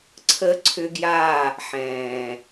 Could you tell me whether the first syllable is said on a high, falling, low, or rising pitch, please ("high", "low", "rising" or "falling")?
high